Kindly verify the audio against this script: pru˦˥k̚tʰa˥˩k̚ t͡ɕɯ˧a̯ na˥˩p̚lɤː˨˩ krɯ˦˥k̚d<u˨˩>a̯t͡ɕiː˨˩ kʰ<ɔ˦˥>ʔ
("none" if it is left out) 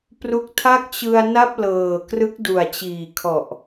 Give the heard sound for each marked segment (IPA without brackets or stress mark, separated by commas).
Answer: u˨˩, ɔ˨˩